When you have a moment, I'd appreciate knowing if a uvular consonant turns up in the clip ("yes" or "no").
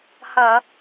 no